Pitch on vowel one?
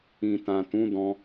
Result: low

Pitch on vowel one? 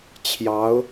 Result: rising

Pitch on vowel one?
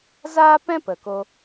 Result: high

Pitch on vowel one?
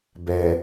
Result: low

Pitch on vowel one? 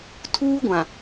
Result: high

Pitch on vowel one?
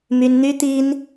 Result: high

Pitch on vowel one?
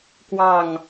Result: falling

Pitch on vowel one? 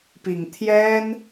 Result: low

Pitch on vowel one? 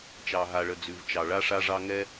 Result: low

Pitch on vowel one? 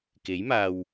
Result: rising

